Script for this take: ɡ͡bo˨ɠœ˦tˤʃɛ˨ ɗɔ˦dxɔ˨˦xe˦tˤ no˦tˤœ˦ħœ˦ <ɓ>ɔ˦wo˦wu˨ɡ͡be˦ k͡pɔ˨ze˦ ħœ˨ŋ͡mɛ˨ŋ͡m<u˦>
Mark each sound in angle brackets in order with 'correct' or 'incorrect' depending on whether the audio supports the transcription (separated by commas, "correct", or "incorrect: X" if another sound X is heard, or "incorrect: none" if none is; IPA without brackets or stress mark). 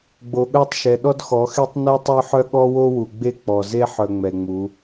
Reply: incorrect: ɠ, incorrect: u˨˦